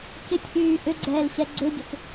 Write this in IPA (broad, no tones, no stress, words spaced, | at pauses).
cɪtʲʔyː ʔʏɡ͡ǀɛːl ɕɛɡ͡ǀøɟʏk